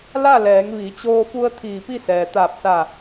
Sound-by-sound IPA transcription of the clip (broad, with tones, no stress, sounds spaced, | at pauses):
l a˥˨ l ɛː˩˧ ŋ ʋ i˩˧ t͡ɕ oː˧ f u˧ ə̯ t̪ʰ iː˧˩ p i˥˨ s ɛː˩ t̪ aː˧˩ p̚ s a˧˩